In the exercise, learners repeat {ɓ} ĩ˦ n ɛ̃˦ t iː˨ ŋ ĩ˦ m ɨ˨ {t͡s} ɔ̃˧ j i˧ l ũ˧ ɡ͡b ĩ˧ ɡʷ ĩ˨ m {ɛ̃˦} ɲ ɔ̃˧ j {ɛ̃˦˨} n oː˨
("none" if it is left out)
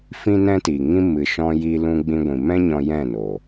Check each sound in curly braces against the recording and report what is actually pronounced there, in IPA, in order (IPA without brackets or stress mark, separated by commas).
f, ʃ, ɛ̃˦, ɛ̃˦˨